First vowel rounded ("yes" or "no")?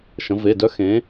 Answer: no